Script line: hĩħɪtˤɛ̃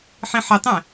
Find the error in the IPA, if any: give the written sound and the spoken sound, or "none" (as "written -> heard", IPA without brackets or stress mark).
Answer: h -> ħ